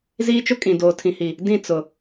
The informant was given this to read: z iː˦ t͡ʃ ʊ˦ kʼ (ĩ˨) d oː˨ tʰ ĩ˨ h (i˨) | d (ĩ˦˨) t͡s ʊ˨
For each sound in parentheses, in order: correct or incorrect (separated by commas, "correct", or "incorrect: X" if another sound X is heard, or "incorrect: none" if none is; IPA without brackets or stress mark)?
correct, correct, correct